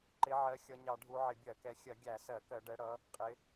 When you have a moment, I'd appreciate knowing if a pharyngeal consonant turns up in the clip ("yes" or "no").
yes